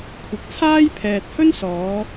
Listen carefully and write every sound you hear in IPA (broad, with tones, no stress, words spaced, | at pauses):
kʷʰɪ˨k̚ t͡sʰaː˥j pʰɛː˨t̚hɵ˥nsɔː˨˧